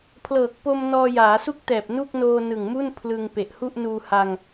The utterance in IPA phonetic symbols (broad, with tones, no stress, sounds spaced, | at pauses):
pʰ l ɤː˨˩ k̚ p o˧ m n ɔː˧ j aː˩˦ s u˥˩ k̚ t ɛː˨˩ p̚ n u˥˩ k̚ n oː˧ n ɯ˨˩ ŋ m u˥˩ n pʰ l ɯ˧ ŋ p e˨˩ ʔ h u˥˩ ʔ n uː˧ h a˧ ŋ